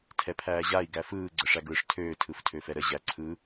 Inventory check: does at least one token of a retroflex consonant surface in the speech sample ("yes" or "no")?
yes